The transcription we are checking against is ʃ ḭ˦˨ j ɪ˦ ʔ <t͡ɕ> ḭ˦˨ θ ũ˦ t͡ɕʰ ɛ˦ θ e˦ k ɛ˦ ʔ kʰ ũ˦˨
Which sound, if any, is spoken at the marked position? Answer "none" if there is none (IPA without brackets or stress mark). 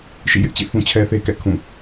t͡ɕ